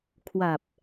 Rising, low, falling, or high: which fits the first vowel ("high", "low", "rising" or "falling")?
low